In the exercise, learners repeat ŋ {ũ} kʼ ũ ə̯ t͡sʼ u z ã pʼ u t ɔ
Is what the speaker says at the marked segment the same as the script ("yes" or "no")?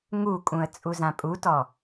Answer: no